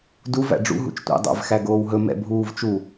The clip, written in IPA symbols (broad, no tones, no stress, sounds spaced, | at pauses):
d u v æ̰ ɖ͡ʐ ṵ ɦ ṵ t͡ʃ tʷ ḭ dˤ æ̰ v x æ ɡ oː w ɦ ɵ m ɛ̰ bʱ uː v t͡ʃ u